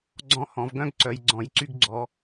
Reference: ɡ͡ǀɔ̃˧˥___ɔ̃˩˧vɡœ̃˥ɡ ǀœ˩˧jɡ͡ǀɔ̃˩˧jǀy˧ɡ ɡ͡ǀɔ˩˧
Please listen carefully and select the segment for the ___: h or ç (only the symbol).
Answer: h